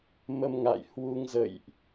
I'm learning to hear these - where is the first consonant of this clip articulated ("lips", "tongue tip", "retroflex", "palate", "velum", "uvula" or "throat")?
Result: lips